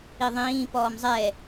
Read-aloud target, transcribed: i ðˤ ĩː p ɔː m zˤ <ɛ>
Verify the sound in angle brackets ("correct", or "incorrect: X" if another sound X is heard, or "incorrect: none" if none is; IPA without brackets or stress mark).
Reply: correct